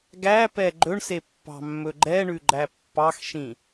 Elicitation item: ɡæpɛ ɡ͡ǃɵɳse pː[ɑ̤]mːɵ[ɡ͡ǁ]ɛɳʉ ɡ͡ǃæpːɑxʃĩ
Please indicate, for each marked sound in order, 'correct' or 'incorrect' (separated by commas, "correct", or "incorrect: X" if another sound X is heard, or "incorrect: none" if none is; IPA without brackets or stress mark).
correct, incorrect: ɡ͡ǃ